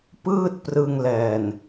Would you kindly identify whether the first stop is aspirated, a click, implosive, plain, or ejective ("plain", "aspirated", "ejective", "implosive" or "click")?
plain